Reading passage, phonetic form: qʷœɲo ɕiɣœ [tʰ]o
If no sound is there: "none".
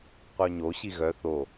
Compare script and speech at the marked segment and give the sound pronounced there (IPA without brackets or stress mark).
θ